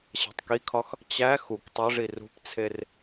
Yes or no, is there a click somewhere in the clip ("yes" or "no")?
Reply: no